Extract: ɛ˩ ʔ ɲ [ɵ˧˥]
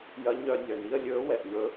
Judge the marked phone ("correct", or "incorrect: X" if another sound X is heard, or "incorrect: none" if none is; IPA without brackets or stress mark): correct